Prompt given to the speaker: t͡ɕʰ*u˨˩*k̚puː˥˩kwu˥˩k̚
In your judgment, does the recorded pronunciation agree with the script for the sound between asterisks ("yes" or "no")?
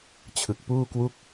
no